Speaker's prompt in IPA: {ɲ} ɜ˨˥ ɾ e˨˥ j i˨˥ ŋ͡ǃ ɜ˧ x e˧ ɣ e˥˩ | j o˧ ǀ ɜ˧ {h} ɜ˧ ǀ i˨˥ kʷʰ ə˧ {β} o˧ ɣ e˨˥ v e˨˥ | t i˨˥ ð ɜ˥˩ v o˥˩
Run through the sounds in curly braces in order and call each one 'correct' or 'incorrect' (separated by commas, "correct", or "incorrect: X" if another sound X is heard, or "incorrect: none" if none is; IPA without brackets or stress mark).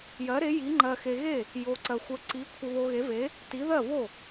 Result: incorrect: j, incorrect: xʷ, correct